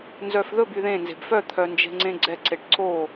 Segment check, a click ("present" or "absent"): present